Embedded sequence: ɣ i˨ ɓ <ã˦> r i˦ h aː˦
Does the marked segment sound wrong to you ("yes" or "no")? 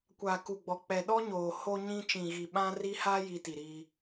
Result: no